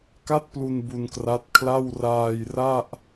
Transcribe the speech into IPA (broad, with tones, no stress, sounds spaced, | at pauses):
k a˥˩ t̚ p l u˧ n b u˧ n k r a˦˥ t̚ kʰ l a˥˩ w r aː˧ j r a˥˩ ʔ